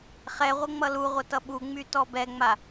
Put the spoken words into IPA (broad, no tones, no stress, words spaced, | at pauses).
χɛʁʷə ŋ͡mʌluʁʷə tʌɓuŋ͡my tɔbɛŋ͡ma